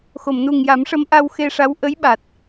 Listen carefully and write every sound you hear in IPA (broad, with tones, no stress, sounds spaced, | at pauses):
x o˨˩˨ m n u˨˩ ŋ j a˨˩˦ m ʂ ə˧˥ m ʔ a˧ w x e˧ ʂ a˧˥ w ʔ ə˧˥ j ɓ a˨˩ t̚